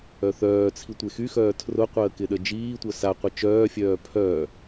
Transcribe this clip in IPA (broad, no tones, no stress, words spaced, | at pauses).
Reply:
œθœːt͡sʰi tʷexyxœː tʰrʊqʷəː kɪɗəd͡ʒiːtʷœ saqʷɪ t͡ʃœːfʲœː pʰœː